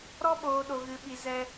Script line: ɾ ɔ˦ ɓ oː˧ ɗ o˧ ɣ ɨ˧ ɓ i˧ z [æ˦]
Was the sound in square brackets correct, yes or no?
no